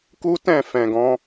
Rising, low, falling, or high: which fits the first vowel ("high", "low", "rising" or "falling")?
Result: high